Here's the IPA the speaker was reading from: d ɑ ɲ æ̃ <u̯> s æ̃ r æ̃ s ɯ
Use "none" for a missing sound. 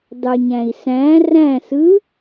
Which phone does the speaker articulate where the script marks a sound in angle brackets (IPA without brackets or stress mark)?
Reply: i̯